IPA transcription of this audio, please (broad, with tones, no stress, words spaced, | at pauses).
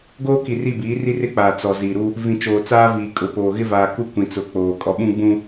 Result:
ɡoː˦ki˨ri˦˨ biː˨˦ri˦rɪ˦k͡paː˨ t͡sɔ˨ zi˨ɾu˦ | vĩ˨t͡ʃoː˨t͡saː˦viː˨ kʼʊ˨poː˨ ɣɪ˦vaː˨ku˦ kʷĩ˨t͡sʊ˨˦ k͡poː˨ kʼɔ˨ɓũ˦ɡ͡bũ˦